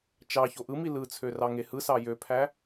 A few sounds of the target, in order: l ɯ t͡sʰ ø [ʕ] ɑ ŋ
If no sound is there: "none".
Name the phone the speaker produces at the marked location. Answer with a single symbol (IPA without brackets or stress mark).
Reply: r